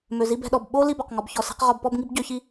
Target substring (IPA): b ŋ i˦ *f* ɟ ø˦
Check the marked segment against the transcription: incorrect: b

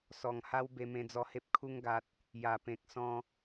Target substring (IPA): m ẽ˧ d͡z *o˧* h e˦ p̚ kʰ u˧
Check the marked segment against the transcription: incorrect: ɔ˧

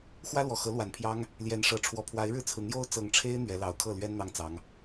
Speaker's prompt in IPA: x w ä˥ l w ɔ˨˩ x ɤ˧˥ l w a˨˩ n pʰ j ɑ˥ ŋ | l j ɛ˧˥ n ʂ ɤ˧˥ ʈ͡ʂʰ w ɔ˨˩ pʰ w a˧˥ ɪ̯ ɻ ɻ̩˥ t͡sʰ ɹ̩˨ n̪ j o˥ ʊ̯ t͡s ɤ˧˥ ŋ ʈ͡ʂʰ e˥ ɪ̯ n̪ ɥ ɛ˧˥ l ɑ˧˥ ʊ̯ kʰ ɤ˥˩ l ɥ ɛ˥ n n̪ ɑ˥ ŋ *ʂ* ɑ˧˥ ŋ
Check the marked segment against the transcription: incorrect: t͡s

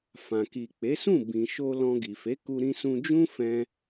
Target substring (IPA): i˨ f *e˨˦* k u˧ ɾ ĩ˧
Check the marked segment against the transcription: correct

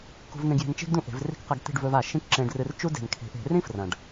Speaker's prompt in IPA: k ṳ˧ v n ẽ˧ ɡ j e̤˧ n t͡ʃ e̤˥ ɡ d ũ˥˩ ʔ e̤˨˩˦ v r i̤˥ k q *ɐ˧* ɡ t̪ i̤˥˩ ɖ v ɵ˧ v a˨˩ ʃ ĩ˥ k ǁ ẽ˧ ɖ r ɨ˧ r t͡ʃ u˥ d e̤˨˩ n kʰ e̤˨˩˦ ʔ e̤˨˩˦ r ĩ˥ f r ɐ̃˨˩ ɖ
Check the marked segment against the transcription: correct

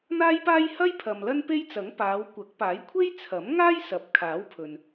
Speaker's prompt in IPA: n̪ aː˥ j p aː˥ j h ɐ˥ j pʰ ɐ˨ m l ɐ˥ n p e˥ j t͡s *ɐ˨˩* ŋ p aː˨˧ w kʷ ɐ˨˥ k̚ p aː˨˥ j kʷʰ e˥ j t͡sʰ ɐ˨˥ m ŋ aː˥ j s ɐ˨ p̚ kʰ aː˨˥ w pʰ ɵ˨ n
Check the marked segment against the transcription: incorrect: ɐ˨˥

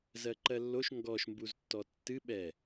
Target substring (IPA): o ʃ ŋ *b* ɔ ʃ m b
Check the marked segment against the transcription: incorrect: ɡ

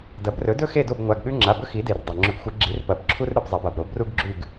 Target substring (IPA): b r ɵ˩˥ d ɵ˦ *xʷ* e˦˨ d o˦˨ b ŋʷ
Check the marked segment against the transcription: incorrect: x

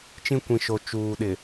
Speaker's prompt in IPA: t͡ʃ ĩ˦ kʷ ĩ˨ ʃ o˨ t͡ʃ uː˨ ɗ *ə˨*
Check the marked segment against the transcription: incorrect: ɪ˨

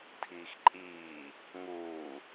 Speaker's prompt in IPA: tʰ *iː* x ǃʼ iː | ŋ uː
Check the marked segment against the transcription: correct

